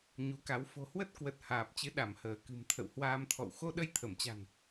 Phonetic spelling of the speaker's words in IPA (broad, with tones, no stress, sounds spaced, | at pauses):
ɲ u˨˦ k a˨˦ w f o̤˨˩ h w ə˦˥ t̚ k w ə˨˩ t̚ h aː˨˩ p̚ t͡ɕ ɨ˨˦ ɗ a˧˩ m h əː˧˩ k ɨ̤˨˩ m t̪ʰ ə̰˧˨ w h w aː˧ m t̪ʰ ɔ̰˧˨ w x o˧ ɗ ə˧ j t̪ʰ ə˧˩ m t͡ɕ a̤˨˩ n